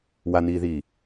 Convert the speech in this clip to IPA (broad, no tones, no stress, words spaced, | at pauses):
waniːðiː